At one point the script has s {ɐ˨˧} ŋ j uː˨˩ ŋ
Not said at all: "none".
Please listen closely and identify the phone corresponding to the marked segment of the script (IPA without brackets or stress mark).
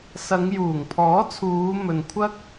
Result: ɐ˨˧